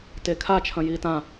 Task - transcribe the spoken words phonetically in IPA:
t e kʰ a t͡ʃʰ ɐ̃ j iː t ã

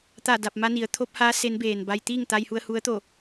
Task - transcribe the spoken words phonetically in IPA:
t̪ a˧˩ d a˧˩ p̚ m a˧ n i˩˧ ə̯ t̪ʰ o˧˥ p̚ h aː˧˥ s e˧˥ n b eː˩ n b a˧ j t̪ iː˥˨ ŋ t̪ a˧ j h u˧ ə̯ h u˧˥ ə̯ t̪ o˧˩

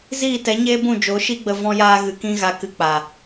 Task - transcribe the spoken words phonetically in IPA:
z iː˦˨ t ɛ˨˦ ɲ eː˦ b ũ˦˨ d͡ʒ o˨˦ ʃ i˦ ɡ͡b ə˧ v ɔ̃˦ j aː˦ ɣ ɨ˧ k ĩ˦ ɣ a˧ k ɨ˧ k͡p a˨

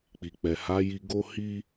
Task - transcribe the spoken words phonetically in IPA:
k͡p i˨ k͡p ɛ˨ h a˨˦ j i˧ ɡ o˦ h i˦

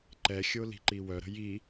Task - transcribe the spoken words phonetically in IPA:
ǃ ɛ xʲ o l i̤ ǃ i w œ ɾ ə̤ j i

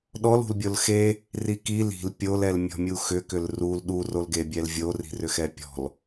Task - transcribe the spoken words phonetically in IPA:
ɗ ɔ l ṳ l bʲ o l x e | r i k i l i̤ l pʲ o l ɛ l mʲ ɔ̤ mʲ u x ʏ k ʏ l r u l ɗ u r o l ɡ e bʲ ɛ l vʲ o r i̤ r ʏ x ɛ pʲ ɔ̤ l

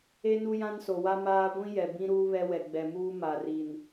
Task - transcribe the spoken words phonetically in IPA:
e˦ n u˦ j ã˦ n s o˨ w a˦ m aː˦ ɡʷ ĩ˦ j ɛ˨ b ĩ˦ ɾ uː˦ β ɛ˦ w ɛ˨ ɡ͡b ɛ˨ m uː˦ m a˨ r i˨ n

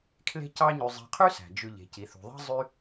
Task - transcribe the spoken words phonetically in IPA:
kʰ l e̤˦ c ɑ˦ ɲ y˨ zˤ e̤˨ qʰ y˥ s æ̤˩ d͡ʒ ʉ˨ ʎ e̤˩ c i˩ θ ṳ˩ ðˤ e̤˦ zˤ y˦

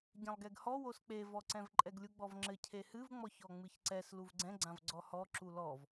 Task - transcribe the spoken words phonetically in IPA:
ɟ ɛ̃ lˠ ɡ ɛ ɡ h ɔ w o s k͡p e v ɔ ǀ ɛ̃ v ǃʼ ɛ ɡ lʲ u ɡ͡b ɔ v ŋ͡ǁ ɘ cʰ e h ɨ v ŋ͡m ɔ ç ɔ ŋ͡m ɨ ç ǀ ɛ s l u v ɡ͡ǀ ɛ̃ ɡ͡ǀ ã v ɡ͡ǀ ɔ h ɔ ǁ u l ɔ v

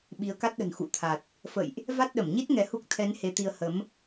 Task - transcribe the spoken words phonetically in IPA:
ɓ i˨˦ ə̯ k a˦˥ t̚ ɗ ə̤˨˩ n x ṵ˧˨ t̪ʰ a˨˩ t̚ | f ə̰˧˨ j ʔ | v a˦˥ t̚ ɗ ə˧˩ m ɲ i˦˥ t̚ ŋ ɛ˨˦ h u˦˥ k̚ t̪ʰ ɛ˨˦ n h e˨˦ t̪ i˧ ə̯ h ə˨˦ m

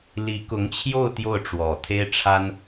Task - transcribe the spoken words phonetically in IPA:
l i˧˥ k ʊ˧˥ ŋ t͡ɕʰ j o˥˧ ʊ̯ t̪ j o˥˩ ʊ̯ ʈ͡ʂ w ɔ˨˩ t̪ʰ e˥ ɪ̯ ʈ͡ʂʰ a˥ n

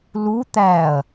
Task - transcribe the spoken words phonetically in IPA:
l u t̪ æ ɐ̯

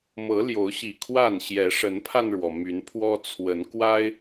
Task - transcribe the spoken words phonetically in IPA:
m ɤ˨˦ l j o˨˦ ʊ̯ ɕ i˨˩ kʰ w a˥˨ n ɕ j ɛ˨˦ ʂ ə˨˦ n pʰ a˧ n ɻ w ɔ˩ m y˨˦ n pʰ w ɔ˦ t͡sʰ w ə˨˦ n k w a˦ ɪ̯

